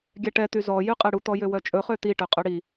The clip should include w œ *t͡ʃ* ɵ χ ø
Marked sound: incorrect: t͡ʃʼ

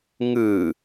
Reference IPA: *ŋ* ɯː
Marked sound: correct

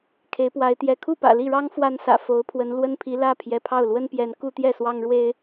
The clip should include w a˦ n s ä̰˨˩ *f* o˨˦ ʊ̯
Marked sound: correct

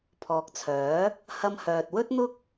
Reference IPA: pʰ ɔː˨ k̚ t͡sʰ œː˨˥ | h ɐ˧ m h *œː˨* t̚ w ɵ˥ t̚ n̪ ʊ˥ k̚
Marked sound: correct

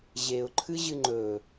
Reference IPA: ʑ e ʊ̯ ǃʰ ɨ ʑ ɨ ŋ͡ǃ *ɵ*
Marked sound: correct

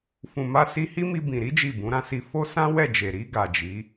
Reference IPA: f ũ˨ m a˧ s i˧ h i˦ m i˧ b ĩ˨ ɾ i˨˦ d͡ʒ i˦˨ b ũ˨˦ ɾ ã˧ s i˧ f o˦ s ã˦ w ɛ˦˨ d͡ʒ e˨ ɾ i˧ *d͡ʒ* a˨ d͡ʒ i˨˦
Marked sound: incorrect: ɡ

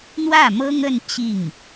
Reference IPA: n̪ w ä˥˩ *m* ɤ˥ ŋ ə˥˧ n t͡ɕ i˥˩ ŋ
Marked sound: correct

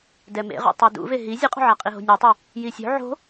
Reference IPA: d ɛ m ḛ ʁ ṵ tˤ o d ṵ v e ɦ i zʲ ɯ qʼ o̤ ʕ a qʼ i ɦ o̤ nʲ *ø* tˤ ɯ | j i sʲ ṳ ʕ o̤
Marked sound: incorrect: e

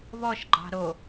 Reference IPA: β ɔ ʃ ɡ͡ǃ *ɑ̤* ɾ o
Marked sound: correct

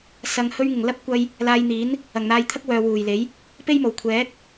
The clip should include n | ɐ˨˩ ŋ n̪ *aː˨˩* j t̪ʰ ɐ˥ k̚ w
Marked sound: incorrect: aː˧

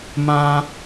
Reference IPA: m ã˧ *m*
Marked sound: incorrect: none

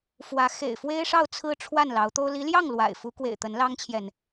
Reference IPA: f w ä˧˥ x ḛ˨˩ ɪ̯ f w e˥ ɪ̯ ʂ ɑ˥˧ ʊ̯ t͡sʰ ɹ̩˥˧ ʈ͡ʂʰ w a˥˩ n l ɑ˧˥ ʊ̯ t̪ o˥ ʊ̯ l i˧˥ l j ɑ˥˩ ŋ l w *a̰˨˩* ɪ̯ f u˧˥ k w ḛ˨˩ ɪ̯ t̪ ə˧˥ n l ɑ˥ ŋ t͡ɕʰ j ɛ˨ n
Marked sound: correct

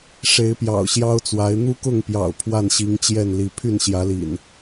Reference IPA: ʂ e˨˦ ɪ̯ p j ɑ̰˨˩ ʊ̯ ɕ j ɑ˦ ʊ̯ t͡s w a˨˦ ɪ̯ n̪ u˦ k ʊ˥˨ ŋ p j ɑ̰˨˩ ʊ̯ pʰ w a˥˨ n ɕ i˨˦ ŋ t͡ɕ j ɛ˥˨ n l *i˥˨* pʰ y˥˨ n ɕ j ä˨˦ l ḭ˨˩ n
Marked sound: incorrect: i˨˦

